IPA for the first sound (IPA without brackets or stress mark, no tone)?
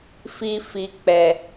f